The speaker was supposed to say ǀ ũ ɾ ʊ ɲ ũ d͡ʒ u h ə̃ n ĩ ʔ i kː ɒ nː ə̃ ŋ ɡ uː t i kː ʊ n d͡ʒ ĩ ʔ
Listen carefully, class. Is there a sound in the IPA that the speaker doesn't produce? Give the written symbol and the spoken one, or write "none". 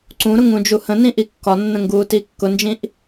ɲ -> ŋ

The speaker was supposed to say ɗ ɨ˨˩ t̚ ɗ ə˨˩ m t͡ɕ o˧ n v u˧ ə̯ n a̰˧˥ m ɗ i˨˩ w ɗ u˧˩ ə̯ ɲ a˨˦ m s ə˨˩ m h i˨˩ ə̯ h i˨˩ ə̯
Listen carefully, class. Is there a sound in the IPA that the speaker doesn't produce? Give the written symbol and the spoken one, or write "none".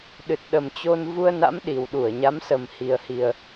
none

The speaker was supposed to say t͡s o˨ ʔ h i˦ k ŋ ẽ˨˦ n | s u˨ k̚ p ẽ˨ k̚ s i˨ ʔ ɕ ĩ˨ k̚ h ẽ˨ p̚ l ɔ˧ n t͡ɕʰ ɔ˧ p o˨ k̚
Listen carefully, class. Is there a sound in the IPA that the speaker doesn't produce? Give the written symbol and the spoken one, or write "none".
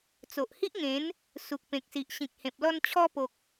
k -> ʔ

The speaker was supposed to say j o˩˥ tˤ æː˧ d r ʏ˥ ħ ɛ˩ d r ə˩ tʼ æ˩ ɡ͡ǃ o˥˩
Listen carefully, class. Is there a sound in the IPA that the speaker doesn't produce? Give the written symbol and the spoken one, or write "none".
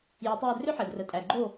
none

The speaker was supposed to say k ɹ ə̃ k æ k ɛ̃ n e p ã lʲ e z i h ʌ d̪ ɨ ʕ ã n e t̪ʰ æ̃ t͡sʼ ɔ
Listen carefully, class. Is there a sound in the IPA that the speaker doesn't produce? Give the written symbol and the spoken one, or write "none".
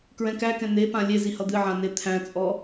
ə̃ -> ɛ̃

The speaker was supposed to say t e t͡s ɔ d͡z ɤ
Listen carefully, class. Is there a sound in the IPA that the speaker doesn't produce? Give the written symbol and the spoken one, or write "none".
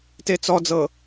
none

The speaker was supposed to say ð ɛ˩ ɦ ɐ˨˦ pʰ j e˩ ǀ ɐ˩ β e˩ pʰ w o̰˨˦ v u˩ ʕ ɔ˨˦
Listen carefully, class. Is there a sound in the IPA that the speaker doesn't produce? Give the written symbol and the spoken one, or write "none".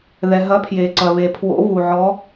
none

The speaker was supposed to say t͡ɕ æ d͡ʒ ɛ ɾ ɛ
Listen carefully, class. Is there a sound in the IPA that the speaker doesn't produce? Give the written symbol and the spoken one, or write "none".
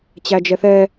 ɾ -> θ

